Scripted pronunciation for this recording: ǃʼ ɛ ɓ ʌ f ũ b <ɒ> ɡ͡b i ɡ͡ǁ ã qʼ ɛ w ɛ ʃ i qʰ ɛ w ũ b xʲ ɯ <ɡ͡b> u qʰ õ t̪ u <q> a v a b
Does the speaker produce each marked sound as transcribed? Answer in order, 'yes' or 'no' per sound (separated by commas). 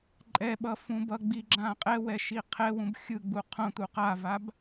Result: no, yes, yes